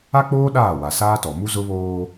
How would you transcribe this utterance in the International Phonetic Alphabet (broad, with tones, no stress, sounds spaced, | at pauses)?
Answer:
a˦ k͡p oː˦ ɗ aː˦˨ w a˨ s aː˦ t ɔ˨ m u˦ z ʊ˦ β oː˦